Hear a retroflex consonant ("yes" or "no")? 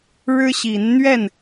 yes